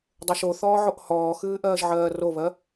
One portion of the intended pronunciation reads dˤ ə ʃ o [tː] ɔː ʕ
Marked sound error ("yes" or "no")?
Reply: yes